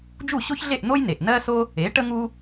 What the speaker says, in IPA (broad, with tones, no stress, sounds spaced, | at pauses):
d͡ʒ u˥˩ ɕ o˥ ç ɮ e˥˩ ʔ n̪ o˥ j n e˩ ʔ n ɜ˥ s o˥ | e˩˥ ʈ ə˥ ŋ u˥